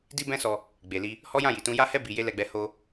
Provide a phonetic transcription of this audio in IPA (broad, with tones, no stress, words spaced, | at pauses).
di˦bɛ̃˦sɔ˧ | ɡ͡be˨li˧ | hɔ˦jã˦˨ji˨tũ˧ ja˧hɛ˧ bi˨je˧ lɛ˧ɡ͡bɛ˧ ho˧